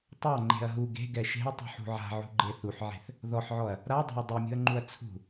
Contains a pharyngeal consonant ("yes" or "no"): yes